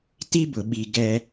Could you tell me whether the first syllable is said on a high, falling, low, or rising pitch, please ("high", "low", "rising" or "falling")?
high